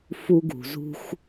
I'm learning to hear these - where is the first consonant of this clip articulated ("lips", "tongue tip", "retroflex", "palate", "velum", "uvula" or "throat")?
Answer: lips